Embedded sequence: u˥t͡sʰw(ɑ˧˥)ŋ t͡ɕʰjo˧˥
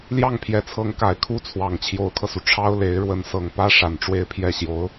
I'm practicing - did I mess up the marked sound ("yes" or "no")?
yes